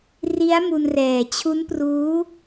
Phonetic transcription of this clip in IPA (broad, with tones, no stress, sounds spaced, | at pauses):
r i˦˥ a̯ m u˧ n r ɛː˨˩ t͡ɕʰ u˦˥ n p r uː˦˥